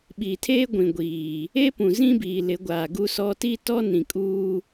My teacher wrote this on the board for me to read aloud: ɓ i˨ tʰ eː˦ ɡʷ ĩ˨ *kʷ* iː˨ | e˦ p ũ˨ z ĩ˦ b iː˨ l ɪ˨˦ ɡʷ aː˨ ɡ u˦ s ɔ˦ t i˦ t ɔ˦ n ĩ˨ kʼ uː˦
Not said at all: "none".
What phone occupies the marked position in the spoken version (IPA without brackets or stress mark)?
ɡʷ